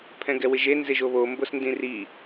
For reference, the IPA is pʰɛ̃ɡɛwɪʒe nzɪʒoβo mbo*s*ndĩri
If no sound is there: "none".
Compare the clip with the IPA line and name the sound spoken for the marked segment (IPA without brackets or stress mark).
s